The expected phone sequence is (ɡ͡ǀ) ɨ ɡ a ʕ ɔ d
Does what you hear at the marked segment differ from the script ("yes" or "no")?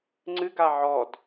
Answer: yes